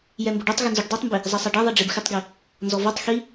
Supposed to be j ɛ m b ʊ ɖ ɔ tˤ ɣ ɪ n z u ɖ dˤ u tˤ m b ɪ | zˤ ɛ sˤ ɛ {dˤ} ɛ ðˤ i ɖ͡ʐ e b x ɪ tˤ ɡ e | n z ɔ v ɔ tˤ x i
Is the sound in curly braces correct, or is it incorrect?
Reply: incorrect